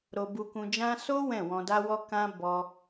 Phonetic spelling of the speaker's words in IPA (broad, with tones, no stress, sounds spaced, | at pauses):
ɾ o˧ b u˧ k ũ˧ d͡ʒ ã˦ s o˦ w ɛ̃˦˨ w ɔ̃˧ d a˦ w ɔ˦ k ã˦ b ɔ˧